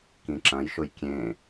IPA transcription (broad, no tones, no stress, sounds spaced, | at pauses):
k ĩ ǁ ɐ̃ j ʃ ʊ j kʲ ẽ